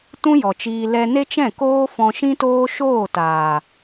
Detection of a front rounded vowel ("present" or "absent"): absent